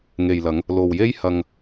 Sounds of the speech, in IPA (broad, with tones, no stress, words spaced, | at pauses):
ŋe˨jlɐ˨˧ŋ | lo˨wje˥j hɐ˧ŋ